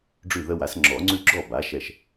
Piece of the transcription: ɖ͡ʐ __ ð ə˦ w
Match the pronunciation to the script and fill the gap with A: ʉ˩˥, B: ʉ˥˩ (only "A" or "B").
B